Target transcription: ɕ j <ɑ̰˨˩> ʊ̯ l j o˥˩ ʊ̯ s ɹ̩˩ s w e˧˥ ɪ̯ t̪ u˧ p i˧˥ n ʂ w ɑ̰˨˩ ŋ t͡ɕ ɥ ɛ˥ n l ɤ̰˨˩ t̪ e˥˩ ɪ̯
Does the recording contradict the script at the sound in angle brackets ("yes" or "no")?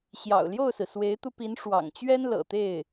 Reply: no